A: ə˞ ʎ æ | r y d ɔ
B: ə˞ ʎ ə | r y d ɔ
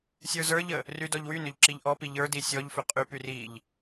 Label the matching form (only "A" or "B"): B